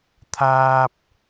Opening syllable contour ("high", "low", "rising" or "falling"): high